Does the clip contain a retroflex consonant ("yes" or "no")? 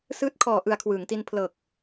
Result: no